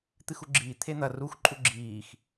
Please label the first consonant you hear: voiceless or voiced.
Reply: voiceless